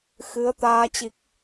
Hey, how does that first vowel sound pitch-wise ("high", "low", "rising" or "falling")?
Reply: rising